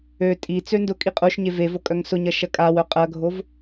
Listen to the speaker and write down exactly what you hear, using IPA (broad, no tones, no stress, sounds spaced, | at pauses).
ø tʼ i t͡s ø n d ʊ kʼ i qʼ o ʃ ɲ e v e v o kʼ œ ŋ s ʊ ɲ ɐ ʃ ɐ kʼ a w œ qʼ ɐ ɡʱ o v